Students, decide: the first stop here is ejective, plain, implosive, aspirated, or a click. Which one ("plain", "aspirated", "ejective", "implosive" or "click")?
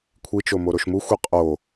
aspirated